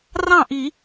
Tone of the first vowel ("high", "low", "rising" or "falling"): falling